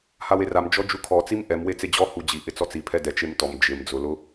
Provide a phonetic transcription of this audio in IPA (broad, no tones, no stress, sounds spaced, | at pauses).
h a w e r a m d͡ʒ ɔ d͡ʒ u kʰ ɔ t͡s i m ʔ ɛ m w e t͡s e d͡ʑ ɔ h u d͡ʑ i ʔ ɪ t͡s ɔ t͡s i pʰ ɛ d ɛ t͡ʃ e m t ɔ m d͡ʒ ɪ m d͡z ʊ l ʊ